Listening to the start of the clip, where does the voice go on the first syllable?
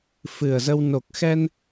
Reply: low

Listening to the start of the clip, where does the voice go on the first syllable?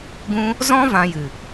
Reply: high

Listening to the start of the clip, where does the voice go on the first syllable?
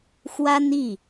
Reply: high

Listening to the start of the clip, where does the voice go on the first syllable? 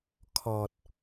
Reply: low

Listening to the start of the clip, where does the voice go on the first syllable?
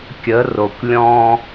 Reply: rising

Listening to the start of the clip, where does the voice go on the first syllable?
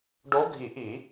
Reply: rising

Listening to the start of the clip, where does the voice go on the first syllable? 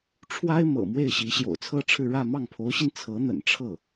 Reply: high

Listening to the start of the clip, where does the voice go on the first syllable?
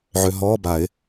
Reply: low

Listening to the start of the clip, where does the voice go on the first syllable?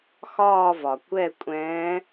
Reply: falling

